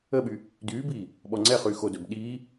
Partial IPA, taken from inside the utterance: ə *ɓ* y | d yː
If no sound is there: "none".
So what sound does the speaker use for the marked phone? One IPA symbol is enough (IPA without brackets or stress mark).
ɓ